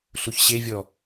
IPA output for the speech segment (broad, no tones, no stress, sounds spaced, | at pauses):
ɬ u ç ɕ e vʲ ɔ